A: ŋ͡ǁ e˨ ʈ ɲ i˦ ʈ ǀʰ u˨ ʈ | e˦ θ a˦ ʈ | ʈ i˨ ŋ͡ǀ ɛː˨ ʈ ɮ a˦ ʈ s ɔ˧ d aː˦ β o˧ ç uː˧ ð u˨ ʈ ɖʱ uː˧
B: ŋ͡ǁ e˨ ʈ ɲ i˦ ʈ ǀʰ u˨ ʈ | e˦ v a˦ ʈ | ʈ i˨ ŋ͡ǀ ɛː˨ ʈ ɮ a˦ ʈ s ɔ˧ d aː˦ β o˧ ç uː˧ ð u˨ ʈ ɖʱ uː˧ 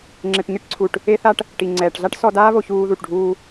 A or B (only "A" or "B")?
A